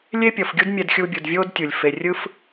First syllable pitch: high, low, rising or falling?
high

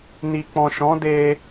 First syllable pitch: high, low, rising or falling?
low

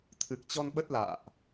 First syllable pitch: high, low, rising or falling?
low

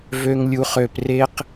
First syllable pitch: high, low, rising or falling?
low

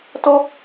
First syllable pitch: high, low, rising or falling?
high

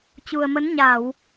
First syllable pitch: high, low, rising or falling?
low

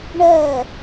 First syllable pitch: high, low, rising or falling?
falling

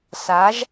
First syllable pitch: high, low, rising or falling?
rising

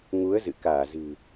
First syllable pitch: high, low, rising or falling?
rising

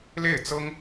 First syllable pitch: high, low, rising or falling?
falling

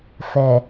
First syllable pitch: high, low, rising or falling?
low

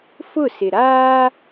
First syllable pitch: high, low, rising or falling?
falling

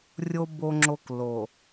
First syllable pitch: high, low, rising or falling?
high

